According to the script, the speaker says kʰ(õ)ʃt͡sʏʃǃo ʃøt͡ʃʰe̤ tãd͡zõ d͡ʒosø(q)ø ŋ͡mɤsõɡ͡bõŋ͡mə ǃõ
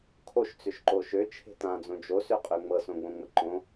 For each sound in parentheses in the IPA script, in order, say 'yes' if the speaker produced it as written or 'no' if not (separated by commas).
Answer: no, no